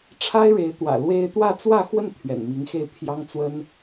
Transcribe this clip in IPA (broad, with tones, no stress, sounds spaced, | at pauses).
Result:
ʈ͡ʂʰ a˥ ɪ̯ ɻ e˧˥ ɪ̯ t̪ w ä̰˨˩ l w e˥ ɪ̯ t̪ w ä˥˧ t͡s w ä˥˧ x w ə˥˩ n t̪ʰ ɥ ɛ̰˨˩ n m i˧˥ ŋ x e˥˩ ɪ̯ pʰ j ɑ˥ ŋ t͡s w ə˥ n